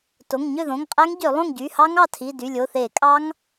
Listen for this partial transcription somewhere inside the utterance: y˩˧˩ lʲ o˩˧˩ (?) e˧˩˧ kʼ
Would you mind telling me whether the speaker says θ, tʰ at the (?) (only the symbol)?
θ